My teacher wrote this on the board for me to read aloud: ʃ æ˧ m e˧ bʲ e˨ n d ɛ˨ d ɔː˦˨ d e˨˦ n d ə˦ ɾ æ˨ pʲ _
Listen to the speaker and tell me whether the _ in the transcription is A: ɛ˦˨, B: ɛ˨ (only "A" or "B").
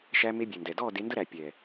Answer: B